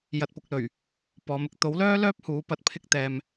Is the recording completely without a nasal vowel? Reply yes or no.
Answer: yes